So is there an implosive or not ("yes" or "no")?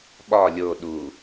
yes